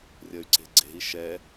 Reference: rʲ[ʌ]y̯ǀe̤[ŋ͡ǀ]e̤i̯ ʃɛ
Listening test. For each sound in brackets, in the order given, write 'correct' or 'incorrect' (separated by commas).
correct, incorrect